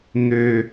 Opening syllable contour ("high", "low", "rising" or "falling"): low